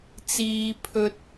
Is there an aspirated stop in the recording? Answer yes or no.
yes